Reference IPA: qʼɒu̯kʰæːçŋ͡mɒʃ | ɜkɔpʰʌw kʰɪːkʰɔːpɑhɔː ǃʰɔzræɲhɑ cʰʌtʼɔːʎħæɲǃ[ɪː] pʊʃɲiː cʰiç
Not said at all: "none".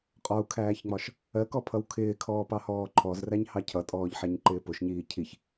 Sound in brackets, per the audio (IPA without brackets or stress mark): ɪː